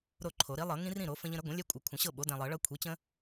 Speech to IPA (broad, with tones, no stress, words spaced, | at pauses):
ɾo˥˨ǃʰo˨˩˦ ɾi˩˥lˠɤ˨˩˦ ŋĩ˦rĩ˥˨ɾo˨˩˦ fə̃˦ʎə̃˦ɾə˩˥ ɡʷə̃˩˥lʲɛ˦kʷʼɤ˨ kʷʰə̃˨˩˦ɕɤ˥˨ ɓo˩˥dɛ̃˨lˠɤ˨˩˦ɭɤ˦ kʷʰi˩˥t͡ɕə̃˦